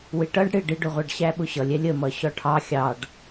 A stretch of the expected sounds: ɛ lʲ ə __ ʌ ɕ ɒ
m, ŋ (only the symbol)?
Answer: m